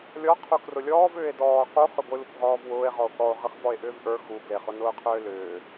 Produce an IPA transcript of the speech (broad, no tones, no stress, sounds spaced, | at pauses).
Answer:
lʲ ɔ qʰ u k r ʊ lʲ ɔː v ʏː e̯ d ɔː q u χ ʏ ɡʷ ɨ l u kʷ ʁ ɔː v w ʊː e̯ ʁ ɔ o̯ k ɔ o̯ ʁ ɨ χ v ɔ e̯ ʔ ʏː v ʔ ə˞ x u ɡ l e χ ʊ n ʊː qʰ ʏː l ʏː